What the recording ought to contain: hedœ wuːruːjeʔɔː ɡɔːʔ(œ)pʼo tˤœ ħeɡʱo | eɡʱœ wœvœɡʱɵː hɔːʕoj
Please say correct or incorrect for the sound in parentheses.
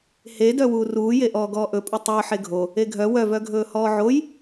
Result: incorrect